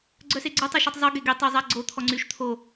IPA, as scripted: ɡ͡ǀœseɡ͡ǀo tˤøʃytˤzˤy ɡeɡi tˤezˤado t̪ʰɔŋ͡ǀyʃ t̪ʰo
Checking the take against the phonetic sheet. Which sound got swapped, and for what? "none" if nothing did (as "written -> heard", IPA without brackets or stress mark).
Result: d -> ɡ͡ǀ